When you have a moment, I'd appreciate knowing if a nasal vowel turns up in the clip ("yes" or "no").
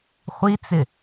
no